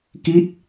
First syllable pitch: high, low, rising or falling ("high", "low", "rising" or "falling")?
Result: falling